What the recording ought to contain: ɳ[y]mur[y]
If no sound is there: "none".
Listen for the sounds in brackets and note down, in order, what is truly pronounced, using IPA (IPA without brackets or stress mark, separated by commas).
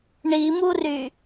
i, y